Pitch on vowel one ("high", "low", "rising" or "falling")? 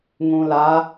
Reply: low